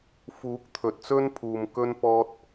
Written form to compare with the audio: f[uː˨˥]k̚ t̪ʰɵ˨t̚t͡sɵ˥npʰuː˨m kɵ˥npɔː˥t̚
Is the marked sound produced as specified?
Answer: yes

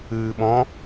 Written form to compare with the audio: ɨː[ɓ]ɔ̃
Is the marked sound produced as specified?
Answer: yes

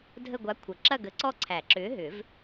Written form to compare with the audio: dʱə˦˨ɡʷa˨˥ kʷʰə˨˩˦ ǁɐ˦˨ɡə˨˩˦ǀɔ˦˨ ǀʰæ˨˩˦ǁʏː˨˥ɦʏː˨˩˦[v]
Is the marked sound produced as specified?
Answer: yes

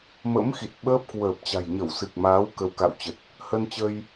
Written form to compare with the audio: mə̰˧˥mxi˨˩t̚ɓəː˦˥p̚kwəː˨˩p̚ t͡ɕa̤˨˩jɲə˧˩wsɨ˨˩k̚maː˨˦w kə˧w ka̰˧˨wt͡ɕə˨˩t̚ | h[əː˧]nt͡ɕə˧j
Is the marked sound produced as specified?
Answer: no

